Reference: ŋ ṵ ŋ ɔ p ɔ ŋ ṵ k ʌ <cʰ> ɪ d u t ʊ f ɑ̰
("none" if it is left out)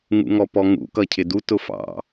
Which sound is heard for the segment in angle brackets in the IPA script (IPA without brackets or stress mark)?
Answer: cʰ